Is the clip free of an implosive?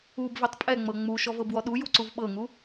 no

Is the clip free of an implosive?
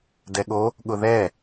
no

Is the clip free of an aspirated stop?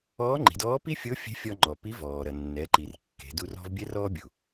yes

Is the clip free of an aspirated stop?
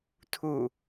no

